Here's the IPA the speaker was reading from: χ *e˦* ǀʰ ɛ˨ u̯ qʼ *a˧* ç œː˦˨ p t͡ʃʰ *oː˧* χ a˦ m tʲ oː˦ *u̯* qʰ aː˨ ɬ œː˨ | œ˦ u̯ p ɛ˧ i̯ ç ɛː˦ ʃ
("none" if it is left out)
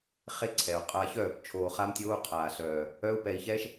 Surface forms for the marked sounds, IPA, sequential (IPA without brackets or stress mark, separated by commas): e˦, a˧, oː˧, u̯